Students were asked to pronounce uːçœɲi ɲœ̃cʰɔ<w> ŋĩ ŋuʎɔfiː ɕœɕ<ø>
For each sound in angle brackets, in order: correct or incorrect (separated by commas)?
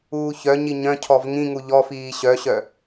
incorrect, incorrect